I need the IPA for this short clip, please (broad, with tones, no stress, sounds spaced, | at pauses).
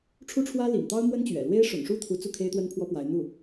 ʈ͡ʂʰ u˥ ʈ͡ʂʰ w ä˥ l ḭ˨˩ ŋ t̪ ɑ˥ ʊ̯ m w ə˥ n t͡ɕ ɥ ɛ̰˨˩ l w e˥ ɪ̯ ʂ ʊ̰˨˩ ŋ ʂ u˥˩ t̪ʰ u˧˥ t͡s u˥˩ kʰ e˥ ɪ̯ t̪ w ə˥ n pʰ w ɔ˥ p w a˧˥ ɪ̯ n̪ u˥˩